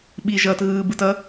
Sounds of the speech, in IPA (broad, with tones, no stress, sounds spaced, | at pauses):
ɓ i˨ ʒ ʌː˨ t ɣ ɯː˨ b ɯ˨ t ʌ˧